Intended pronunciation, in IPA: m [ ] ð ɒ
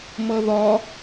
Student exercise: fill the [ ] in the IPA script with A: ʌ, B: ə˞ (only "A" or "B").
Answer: A